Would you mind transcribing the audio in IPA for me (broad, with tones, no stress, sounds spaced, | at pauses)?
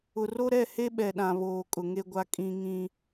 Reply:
ʊ˨ r o˦ ɾ ɛ˦˨ h e˦ ɓ ɛ˨ ɗ ã˨ β oː˨ kʼ ʊ˨ ŋ e˦ ɡʷ a˦ kʼ ĩ˦ ŋ ĩ˦